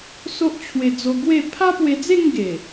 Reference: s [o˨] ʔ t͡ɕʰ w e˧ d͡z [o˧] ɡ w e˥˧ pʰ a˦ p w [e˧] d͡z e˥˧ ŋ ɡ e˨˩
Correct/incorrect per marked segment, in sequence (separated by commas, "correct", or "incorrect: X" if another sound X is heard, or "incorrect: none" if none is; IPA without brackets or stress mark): incorrect: o˦, correct, correct